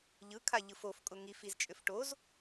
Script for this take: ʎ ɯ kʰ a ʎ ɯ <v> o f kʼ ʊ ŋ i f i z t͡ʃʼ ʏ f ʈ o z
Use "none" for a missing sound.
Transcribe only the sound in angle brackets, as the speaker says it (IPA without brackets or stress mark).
f